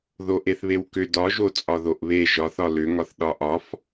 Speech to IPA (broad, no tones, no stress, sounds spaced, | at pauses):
ð o ʔ e θ β e w k ʏ d ɒ ʒ o t͡sʼ ɒ ð o ʔ β e ʒ ɒ θ ɒ l ʏ ŋ ɒ θ ɗ ɒ ʔ ɒ f